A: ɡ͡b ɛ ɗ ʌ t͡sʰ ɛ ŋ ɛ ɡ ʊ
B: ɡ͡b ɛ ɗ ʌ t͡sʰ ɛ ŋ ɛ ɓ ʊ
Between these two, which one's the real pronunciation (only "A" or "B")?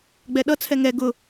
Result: A